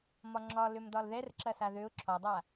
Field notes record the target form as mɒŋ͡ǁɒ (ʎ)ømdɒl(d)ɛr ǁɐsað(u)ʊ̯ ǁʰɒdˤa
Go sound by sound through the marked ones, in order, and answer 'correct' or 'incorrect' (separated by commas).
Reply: incorrect, incorrect, incorrect